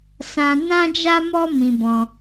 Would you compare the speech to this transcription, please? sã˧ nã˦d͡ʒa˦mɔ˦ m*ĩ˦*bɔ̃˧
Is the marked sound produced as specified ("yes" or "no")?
no